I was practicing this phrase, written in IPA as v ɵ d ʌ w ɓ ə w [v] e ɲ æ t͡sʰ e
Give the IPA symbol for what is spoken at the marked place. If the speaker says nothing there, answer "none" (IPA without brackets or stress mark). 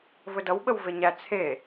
v